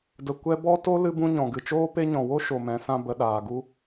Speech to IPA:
d ə˨ kʷ ɛ˧ b ɔ˧ t o˧ l ɨ˧ b ũ˧ ɲ ɔ̃˨ ɡ ɨ˨ t͡ʃ oː˦ p e˧ ɲ ɔ̃˨ w o˦ ʃ o˨ m ɛ̃˨˦ s ã˧ b ə˧ ɗ aː˨ ɡ u˦

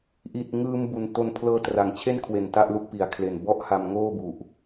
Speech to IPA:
ʔ i˨˩ t̚ ŋ ɯː˧ m b u˨˩ n t o˧ n pʰ l ɤː˧ t r a˩˦ ŋ t͡ɕʰ e˥˩ n kʰ w e˨˩ n t a˥˩ ʔ l u˥˩ k̚ p i˨˩ a̯ kʰ l e˨˩ n b ɔ˥˩ ʔ h a˧ m ŋ oː˥˩ b u˨˩ ʔ

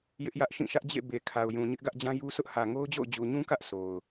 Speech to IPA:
j ɪ˦ ʔ j ä˦ ʔ ʃ ĩ˦˨ ʃ ä˦ ʔ d͡ʑ ḛ˦˨ b e˨ kʰ a˨ ʊ̯ j ũ˨ ɲ ɪ˦ ʔ ɡ ä˦ ʔ d͡ʑ ã˦ j u˦ sʰ ʊ˦ ʔ h ä˨ ŋ o˦ ʊ̯ d͡ʑ o̰˦˨ ʊ̯ d͡ʑ u˨ ɲ ũ˦ k ä˦ ʔ sʰ o˨ ʊ̯

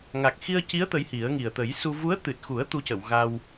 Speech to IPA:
ŋ a˨˩ k̚ x i˧ ə̯ c i˧˥ ə̯ t̪ ə˧˥ j h i˨˩˦ ə̯ ŋ i˨˩ ə̯ t̪ ə˨˩˦ j s u˧ v u˧˥ ə̯ t̪ ɨ˨˩ t̚ x u˨˩˦ ə̯ t̪ u˧˥ c ə˨˩˨ w ɣ a˧ w

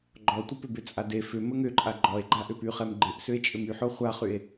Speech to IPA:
ɡ͡ǃ ɔ tʷ ɪ p ɪ b ɪ t͡sʼ a d e f ʏ m ə ŋ ʏ ǃʼ a ɡ͡ǃ ɔ e̯ ɡ͡ǃ a ʔ ʏ p y χ ɛ m ɡ͡ǃ ɪ ʔ s ʏ e̯ t͡ʃʼ ʏ m y ħ o χʷ a χ y e̯

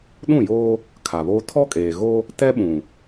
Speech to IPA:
ɗ ũ˦˨ j oː˦ | kʰ a˨ β oː˦ tʰ ɔ˦ kʼ eː˨ ɣ o˦ | t ɛ˦ ɓ ũ˨

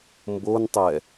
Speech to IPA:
m b o n tˤ ɛ

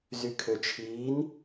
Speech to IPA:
z y kʰ ø t͡ʃʰ iː n

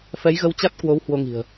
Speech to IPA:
f ɛ˨˦ j ɣ ə˧ w t͡ɕ a˦˥ t̚ k w o˨˦ w h w o˧ ŋ i̤˨˩ ə̯

